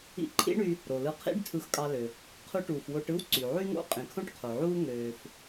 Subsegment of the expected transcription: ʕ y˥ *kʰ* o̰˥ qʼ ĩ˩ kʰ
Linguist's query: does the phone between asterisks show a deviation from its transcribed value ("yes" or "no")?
yes